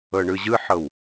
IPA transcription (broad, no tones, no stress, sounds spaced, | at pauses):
ɤ ɳ ɯ ʑ ɯ ħ ɤ w